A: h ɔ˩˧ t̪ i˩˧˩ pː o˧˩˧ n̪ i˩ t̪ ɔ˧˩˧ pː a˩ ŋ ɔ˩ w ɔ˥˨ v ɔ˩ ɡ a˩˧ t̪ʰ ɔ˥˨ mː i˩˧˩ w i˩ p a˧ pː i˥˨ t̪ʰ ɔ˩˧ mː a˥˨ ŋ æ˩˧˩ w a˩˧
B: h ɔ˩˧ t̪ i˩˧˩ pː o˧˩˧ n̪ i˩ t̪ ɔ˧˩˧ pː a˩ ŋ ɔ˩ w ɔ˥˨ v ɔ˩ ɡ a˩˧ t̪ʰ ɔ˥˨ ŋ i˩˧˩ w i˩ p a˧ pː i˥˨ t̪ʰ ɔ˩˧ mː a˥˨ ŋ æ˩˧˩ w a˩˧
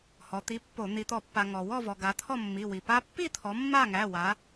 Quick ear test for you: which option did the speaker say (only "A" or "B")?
A